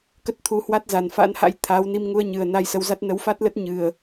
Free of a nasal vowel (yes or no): yes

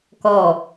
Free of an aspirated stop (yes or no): yes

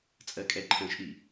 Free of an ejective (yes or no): no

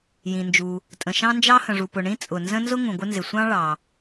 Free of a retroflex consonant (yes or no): no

